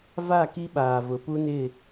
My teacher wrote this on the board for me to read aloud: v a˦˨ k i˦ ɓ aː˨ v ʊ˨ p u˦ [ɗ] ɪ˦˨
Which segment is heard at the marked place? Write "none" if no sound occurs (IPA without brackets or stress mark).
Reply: n